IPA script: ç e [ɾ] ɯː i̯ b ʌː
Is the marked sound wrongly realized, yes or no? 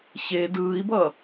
yes